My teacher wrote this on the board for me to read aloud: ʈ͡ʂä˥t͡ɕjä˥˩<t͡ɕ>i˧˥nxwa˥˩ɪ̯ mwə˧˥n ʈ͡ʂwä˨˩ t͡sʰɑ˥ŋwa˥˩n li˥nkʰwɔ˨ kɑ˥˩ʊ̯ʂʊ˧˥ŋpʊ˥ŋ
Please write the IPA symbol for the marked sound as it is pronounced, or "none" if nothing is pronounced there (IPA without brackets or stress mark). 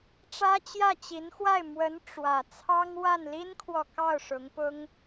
t͡ɕ